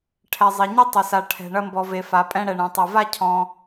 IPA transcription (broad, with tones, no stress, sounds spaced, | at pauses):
ʈʰ ɛ˩ zˤ e˩ ɲ e˥ tˤ ɐ˩ s a˩ ʈʰ ɛ̤˩ ɳ ɐ˧ m b ɔ˩ v e˩ f a˩ pʼ ɛ̃˧ ɽ ɛ˩ ɳ ɛ̃˩ tˤ ɛ˩ v a˥ cʰ ɔ̃˧